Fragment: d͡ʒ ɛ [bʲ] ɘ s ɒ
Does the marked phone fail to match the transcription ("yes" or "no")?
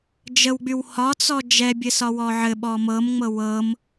no